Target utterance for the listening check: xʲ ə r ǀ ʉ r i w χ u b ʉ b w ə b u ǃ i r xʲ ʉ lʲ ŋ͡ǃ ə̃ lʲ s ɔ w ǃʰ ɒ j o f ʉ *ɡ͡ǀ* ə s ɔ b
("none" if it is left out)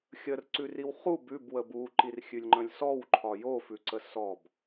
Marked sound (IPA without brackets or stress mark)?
ǀ